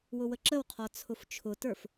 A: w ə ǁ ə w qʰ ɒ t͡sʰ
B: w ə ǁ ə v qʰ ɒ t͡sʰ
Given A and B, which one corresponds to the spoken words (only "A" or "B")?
A